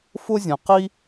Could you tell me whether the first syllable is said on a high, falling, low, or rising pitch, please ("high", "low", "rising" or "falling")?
high